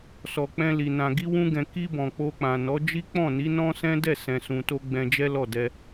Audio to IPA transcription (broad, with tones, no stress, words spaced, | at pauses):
sɔ˨k͡pɛ̃˧ li˨ nã˨ɡi˧wũ˧ɡɛ̃˨ ki˧bɔ̃˨ k͡po˧k͡pã˨nɔ˨˦ d͡ʒi˦k͡pɔ̃˦˨ni˨˦ nɔ̃˦sɛ̃˦ dɛ˦˨ sɛ̃˧sũ˧to˦ ɡ͡bɛ̃˧d͡ʒɛ˦lɔ˦˨ dɛ˧